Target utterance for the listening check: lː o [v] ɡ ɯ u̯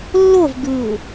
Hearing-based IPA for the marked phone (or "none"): v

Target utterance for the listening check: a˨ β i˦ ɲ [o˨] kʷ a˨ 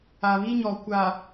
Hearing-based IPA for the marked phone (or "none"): ɔ˨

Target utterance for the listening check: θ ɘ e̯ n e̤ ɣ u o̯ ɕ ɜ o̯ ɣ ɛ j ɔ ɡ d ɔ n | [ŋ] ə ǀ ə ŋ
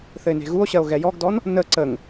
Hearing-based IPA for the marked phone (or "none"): n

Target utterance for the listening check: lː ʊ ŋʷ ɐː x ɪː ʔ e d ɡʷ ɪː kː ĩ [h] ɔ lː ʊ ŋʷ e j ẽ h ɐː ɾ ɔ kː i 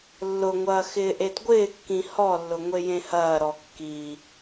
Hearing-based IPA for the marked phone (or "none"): h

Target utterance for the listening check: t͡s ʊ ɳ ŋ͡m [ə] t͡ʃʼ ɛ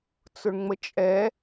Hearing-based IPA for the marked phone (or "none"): ə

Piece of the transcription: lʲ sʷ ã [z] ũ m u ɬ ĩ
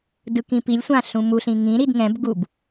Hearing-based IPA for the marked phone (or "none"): ɬ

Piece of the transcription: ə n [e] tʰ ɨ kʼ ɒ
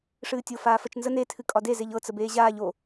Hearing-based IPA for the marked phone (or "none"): e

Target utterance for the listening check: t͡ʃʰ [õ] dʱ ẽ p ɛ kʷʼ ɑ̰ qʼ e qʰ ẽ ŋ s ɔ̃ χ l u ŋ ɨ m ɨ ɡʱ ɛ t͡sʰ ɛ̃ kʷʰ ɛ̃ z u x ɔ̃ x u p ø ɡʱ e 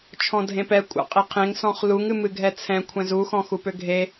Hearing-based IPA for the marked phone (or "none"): ɔ̃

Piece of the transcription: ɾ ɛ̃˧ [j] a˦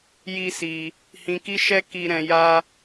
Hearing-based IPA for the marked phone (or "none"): j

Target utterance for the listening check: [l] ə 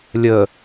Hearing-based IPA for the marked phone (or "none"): lʲ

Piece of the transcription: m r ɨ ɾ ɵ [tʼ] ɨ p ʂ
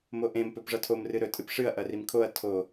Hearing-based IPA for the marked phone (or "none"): tʼ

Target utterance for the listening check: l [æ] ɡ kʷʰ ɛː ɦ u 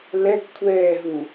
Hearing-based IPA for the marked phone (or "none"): ɛ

